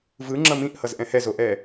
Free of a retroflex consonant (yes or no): yes